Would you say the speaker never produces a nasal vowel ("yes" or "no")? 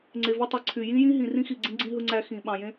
no